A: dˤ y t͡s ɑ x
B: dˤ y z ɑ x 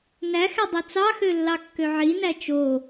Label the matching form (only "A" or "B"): A